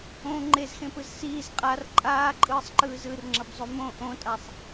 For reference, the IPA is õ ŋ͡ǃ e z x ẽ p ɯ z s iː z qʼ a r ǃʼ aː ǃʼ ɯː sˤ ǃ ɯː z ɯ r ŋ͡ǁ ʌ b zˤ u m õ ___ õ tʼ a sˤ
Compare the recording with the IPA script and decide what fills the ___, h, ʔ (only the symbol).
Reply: ʔ